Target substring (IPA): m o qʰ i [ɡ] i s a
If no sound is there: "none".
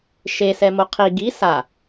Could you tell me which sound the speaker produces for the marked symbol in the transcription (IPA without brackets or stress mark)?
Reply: ɡ